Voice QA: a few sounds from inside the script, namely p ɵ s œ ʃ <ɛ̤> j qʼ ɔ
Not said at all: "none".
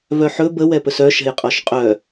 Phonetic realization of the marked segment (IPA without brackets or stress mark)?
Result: ɛ̤